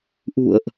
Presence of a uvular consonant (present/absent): absent